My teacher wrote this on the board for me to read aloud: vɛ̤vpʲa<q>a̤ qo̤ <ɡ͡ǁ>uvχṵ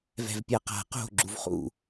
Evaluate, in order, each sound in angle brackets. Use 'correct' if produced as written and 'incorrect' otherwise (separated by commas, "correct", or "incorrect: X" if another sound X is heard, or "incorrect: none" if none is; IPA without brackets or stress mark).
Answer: correct, correct